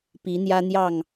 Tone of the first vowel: rising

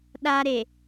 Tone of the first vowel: high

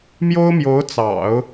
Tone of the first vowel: high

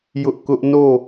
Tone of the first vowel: high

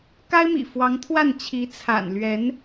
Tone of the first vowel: high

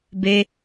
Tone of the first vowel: high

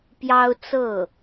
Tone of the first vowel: high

